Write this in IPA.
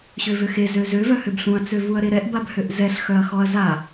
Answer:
ɕ ø v ø x e z ø z ø v œ h ø b ɬ ũ ɐ̯ t͡s ø v u ɐ̯ ɾ e ɾ ɛ ʔ b a b h ø ʔ z ɛ ɬ x œ ɐ̯ x ɔ ɐ̯ z a

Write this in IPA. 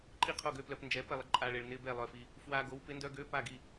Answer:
ǃʼ i˥˨ qʰ o˥˨ ɡ ø˧˥˧ p l œ˧ p n d͡ʒ ɛ˨˥ p ɛ˥˨ lˠ ɪ˧ ǃʼ a˧˥˧ ɭ e˧ ɭ n ɪ˧˥˧ b ɛ˥˨ lˠ œ˧ f i˧ | f w a˧ ɡ o˨˥ w p ɪ˨˥ n d œ˧˥˧ ɡ ø˧˥˧ p a˥˨ ɡ i˥˨

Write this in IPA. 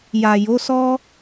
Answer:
j a˨ j o˨˦ s ɔ˦

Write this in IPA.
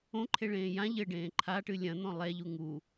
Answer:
õ ǃʰ e ɭ ẽː j ã ʎ ɘ ɖ ẽː ǃʰ a ʈ ɨ lʲ ɐ̃ n̪ ɔ̃ lˠ ɛ ʎ u ŋ u

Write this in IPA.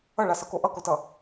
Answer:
ʌ ɭ a s ʌ k o ʔ ʌ k o t ʌ

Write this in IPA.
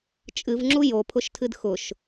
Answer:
t͡ʃʼ ɨ v ŋ͡ǁ u j o pʰ ʊ ʃ tʰ ɨ d x ʊ ʃ

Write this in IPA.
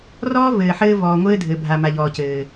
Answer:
r ɔː˦ v ɘː˨ ħ ɘː˦ v ɔː˨ ŋʷ ɘː˦ dʱ ɘ˨ bʱ a˨ m a˨ ʎ ɔː˨ c ɘː˨

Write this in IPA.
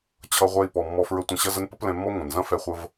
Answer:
t͡ɕʰ ʌ˧ ʁʷ ɛ˧ i̯ p ɔ˨ mː ɔ˧ f ɹ ə˧ tʷ ɐ̃˧ ɕ ɐ˦ z ə˦ n p ə˦ p l ɛ̃˧ mː ɔ˦ ŋʷ ɐ̃˨ n z ɐ̃˦ f ɛ˧ χʷ ə˧ v

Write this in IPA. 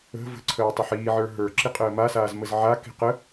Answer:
ə̤ v ə̤ ǀʰ əː tˤ ə ħ iː ʕ ə˞ ɦ ə˞ ǁ i qʼ əː m a s aː z m ə z ʕ a k i̤ q ə

